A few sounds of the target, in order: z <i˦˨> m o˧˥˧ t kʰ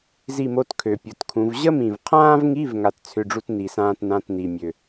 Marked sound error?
no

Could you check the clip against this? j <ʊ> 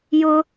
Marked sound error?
no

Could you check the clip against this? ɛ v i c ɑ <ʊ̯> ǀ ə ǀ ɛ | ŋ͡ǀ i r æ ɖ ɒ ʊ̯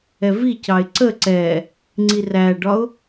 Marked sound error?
yes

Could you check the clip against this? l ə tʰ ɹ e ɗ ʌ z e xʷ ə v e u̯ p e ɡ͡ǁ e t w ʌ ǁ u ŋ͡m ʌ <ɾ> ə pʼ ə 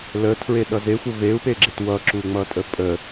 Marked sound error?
yes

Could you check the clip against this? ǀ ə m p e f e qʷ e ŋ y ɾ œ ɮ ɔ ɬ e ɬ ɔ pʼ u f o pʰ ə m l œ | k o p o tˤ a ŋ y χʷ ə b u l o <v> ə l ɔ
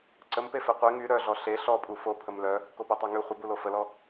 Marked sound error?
yes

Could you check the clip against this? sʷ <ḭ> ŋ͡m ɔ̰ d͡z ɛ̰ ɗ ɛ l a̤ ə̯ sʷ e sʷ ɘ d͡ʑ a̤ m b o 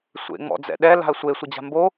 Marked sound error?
yes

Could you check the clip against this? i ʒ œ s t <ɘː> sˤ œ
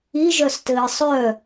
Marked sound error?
no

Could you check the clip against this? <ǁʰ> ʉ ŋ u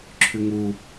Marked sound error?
no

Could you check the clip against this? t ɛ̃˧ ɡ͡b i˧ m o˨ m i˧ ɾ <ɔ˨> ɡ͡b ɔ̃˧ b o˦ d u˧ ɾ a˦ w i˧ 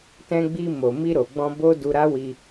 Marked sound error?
yes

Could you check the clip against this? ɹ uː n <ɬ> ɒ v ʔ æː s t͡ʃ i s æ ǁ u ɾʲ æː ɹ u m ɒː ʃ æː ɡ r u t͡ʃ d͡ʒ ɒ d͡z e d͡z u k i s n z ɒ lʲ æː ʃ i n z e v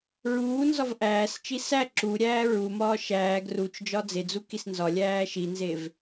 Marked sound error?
yes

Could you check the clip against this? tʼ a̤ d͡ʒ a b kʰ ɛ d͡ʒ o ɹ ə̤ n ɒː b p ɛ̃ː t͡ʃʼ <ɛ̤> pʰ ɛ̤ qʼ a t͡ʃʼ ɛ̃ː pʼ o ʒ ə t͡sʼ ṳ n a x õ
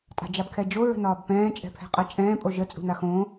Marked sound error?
no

